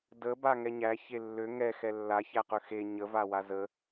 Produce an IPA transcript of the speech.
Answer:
də baŋɛɲæ çelːø ŋɛ xɛlːa çæqøxe ɲə vawazə

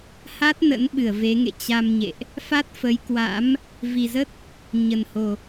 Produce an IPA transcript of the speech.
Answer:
ha˦˥t̚ nə̰˧˥nɓɨ˧˩ə̯ ve˨˦ŋḛ˧˨ t͡ɕa˧mɲḛ˧˨ʔ | fa˦˥t̚fə˨˦jkwa̰˧˥m | vi˨˩zə˦˥t̚ | ɲə˨˩nho˨˩

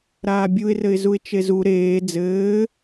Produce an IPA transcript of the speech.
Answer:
ɾaːbʲuɪ̯rɘɪ̯zuɪ̯ t͡ʃezu ɾeː d͡zɘː

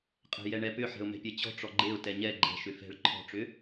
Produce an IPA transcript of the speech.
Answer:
qʼɛ̤jɛɳɛpʏ ħɛ̤ʊ̯mɛ̤pʲɛt͡ɕɔ̤ ʈ͡ʂɔɡ͡ǃeʊ̯ tɛɲɛ ɡ͡ǃɛ̤ʃʏ fɛ̤ɭ ǃʰɔ̤ʈ͡ʂʏ

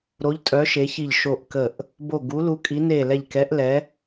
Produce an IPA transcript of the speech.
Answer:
ɾo˨˦ʎtʼœ˨˦ ʃe˨˦çi˧˩ʎ ʃo˧˩ʔkə˧˩ʔ | bo˧˩ɡu˨˦ lu˨˦kʼi˨˦ ne˧˩lɛ˧˩ʎkɛ˨˦ʔlɛ˨˦

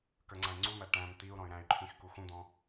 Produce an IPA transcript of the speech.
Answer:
kə˞ŋ͡ǀæ̃i̯ŋ͡ǀumæ ʈæ̃m t̪iu̯ ɾɔ̃y̯ɾæ̃y̯ǃʰĩx kuxũd̪ɔ̃

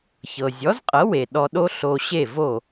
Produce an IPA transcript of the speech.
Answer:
çɤ˩zʲɔ˩˥zqʼɤ˩˥we˩ ɗɔ˧ɗo˥ ɬo˧ɕe˥˩ vo˥˩

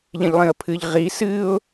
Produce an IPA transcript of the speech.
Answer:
ʎẽʎlˠĩə̯pʰɨʎ ʁi sɨʊ̯

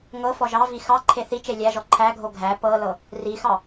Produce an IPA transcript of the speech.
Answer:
ŋɤ fɔʒɑvi xɑ ǃʰeθit͡ʃe lʲæʒɔ ǃʰæɡʱo ɡʱæ pɤlɤ | rixɑ

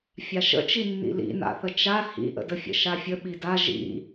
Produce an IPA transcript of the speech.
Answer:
fʲaʃə̰t͡ʃinːḭ lḭna̰θə t͡ʃa hḭʔə̰dəfʲə̰ ʃafʲə ɓida ʒḭ

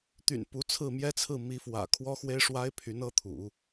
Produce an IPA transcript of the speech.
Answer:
t̪y̰˨˩npu˧˥t͡sʰɹ̩˥˩ mjɛ˥t͡sʰɹ̩˥˩ mi˧˥fwä̰˨˩ kʰwɔ˥xwe˥ɪ̯ʂwa˥ɪ̯ pʰy˧˥nɤ˥t̪ʰṵ˨˩˦

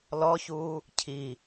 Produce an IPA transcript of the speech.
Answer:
lɔçuː | cʰi

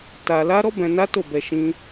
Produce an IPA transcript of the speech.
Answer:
ta˧la˦ ɾɔ˦bɛ̃˧ na˦to˦˨bɛ˧ ʃĩ˦

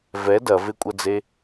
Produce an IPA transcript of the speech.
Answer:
vɛ dɐvekʷʼɐd͡ze

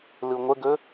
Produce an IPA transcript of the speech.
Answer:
lɯŋʷəɡɵ

